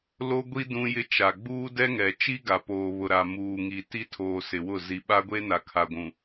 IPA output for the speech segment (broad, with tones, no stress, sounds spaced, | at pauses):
l o˦ ɡʷ i˦ d ũ˦ j ɪ˦ t͡ʃ a˨ ɡ͡b uː˦ d ɛ˦ ŋ ɛ˨ t͡ʃ i˦ ɡ a˨ p oː˨ β ʊ˨ ɾ a˨ m uː˨ ŋ i˨ t i˦ tʰ oː˨ s ɪ˨ w ʊ˦˨ z i˨ ɓ a˦ ɡʷ e˦ n a˨ kʰ a˨ ɡʷ ũ˨